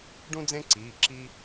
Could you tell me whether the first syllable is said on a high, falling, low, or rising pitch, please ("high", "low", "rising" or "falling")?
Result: high